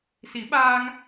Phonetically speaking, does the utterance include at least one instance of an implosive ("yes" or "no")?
yes